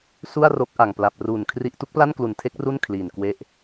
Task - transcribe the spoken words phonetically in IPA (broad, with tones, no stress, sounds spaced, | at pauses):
s u˥˩ a̯ r o˦˥ k̚ ʔ a˨˩ ŋ p l a˨˩ p̚ r uː˨˩ n kʰ r i˥˩ ʔ t u˥˩ k̚ p l a˥˩ n k l u˨˩ n tʰ e˦˥ k̚ r u˥˩ n kʰ l iː˨˩ n k w e˦˥ ʔ